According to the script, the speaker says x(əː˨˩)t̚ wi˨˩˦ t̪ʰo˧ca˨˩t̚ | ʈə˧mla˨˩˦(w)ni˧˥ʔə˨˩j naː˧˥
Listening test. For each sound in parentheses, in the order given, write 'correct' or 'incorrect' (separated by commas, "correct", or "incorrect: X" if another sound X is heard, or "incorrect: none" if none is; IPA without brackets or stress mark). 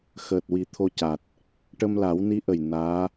correct, correct